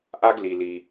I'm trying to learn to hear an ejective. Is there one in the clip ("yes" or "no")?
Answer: no